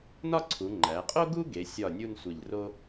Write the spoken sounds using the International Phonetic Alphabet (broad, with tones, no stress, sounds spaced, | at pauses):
n ɒ˥˧ ǀʰ u˩˧ ŋ͡ǃ æ˩˧ qʼ o˥ ɡ u˥ ɡ e˩˧ sʲ ɒ˧˩ nʲ u˥˧ n sʷ e˧˩ ʎ r o˥